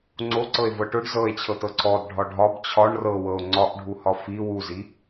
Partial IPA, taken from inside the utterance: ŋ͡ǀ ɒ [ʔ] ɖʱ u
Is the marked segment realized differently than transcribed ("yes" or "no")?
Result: no